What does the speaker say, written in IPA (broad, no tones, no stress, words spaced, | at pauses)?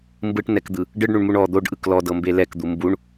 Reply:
mbɯʈnɛkd̪ɯ | ɖɯɖɳuɳmuɳ ɔ d̪oɖʔɯk lɔdɤmbe lɛkd̪u mbuɳ